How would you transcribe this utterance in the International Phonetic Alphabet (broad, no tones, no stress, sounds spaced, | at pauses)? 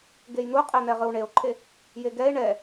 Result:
ɡ e j n̪ u qʼ ɛ n̪ ɛ ʁ ɯ w ɳ e o̯ ǃʰ e | j e ɡ ɛ e̯ ɳ ɛ